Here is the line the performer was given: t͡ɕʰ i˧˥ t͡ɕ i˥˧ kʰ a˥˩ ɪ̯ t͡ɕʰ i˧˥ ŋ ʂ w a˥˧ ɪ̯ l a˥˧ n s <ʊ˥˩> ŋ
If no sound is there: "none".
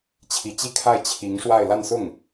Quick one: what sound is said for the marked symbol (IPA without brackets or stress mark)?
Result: ʊ˥˩